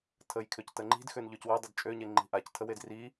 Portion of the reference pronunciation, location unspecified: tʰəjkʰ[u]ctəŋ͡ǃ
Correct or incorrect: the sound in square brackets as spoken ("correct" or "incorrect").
incorrect